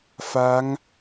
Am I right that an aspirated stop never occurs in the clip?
yes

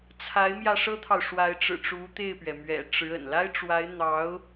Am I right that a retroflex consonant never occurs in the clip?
no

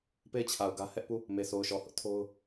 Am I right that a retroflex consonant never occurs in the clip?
yes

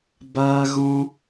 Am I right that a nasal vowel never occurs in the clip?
no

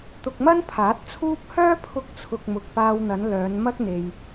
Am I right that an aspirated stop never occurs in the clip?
no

